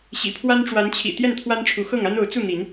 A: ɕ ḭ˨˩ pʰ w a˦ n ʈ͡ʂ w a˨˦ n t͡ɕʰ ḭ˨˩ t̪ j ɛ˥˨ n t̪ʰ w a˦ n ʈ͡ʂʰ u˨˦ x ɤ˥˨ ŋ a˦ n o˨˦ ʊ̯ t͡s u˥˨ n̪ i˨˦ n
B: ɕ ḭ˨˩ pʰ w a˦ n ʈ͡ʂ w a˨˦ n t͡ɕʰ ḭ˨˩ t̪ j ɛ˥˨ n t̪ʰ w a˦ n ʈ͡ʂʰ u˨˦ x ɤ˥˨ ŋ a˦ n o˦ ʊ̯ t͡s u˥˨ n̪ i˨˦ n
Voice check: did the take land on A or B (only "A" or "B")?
A